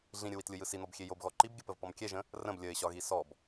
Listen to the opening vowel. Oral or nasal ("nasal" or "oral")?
nasal